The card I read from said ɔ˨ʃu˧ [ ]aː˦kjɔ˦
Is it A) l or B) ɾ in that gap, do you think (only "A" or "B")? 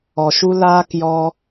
A